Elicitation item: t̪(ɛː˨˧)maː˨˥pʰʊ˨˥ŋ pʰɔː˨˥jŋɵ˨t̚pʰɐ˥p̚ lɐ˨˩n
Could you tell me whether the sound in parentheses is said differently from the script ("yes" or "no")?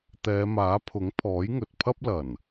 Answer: no